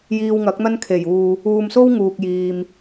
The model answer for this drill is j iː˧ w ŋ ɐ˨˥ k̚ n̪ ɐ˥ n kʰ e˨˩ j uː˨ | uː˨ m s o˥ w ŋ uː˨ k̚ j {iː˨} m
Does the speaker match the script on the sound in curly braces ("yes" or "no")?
yes